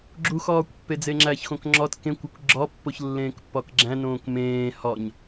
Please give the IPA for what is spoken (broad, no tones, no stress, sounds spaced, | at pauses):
ɡ͡ǁ u x ɒː kʷ pː e d͡z e ŋ͡ǁ æ ç x õ k ŋ͡ǁ ɒ t k ẽ kʷ æ kʷ ɡ͡ǁ ɒ pː o ç lː ẽː k pː ɒ k ɡ͡ǁ æ̃ n õː k m ẽː h ɒ ɲ